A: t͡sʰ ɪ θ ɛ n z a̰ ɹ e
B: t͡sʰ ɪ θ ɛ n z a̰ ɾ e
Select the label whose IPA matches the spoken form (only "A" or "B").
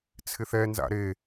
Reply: B